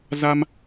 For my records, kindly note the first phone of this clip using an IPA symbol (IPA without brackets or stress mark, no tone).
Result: z